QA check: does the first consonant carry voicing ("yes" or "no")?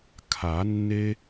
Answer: no